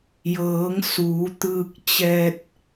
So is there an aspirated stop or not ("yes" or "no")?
no